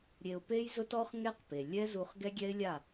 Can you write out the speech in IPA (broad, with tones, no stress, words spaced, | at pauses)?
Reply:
ɾʲe˧ʊ̯pe˦jzʊ˦t ɔ˦χŋɛ˦qpe˨ lʲɛ˦zu˧χ ɡɛ˦ɡʲɛ˦ɪ̯lʲa˦˨